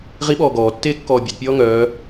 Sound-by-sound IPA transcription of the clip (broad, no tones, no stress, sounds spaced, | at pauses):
ʁ i ɓ ɔː ɡ ɔː tː eː kː ɔː bʲ a d pʲ ɔː ŋ œː